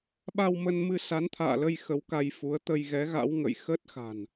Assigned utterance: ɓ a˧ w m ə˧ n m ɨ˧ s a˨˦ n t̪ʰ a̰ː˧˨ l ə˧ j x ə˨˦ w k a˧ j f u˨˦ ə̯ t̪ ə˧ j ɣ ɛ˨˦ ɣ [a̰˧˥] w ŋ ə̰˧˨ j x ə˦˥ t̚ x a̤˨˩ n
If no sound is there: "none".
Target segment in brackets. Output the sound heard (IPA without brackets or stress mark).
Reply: a̰˧˥